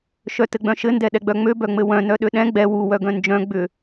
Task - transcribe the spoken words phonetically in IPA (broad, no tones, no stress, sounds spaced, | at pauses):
ʃ œ t ɘ ɡ͡b œ̃ ʃ ɘ n d ɛ ɗ ɛ ɡ͡b œ ŋ͡m ø b œ ŋ͡m ɘ w œ̃ n œ ɗ ø ɗ ɛ̃ ɡ͡b ɛ w u w œ ɡ œ̃ n d͡ʒ œ̃ ɡ͡b ʏ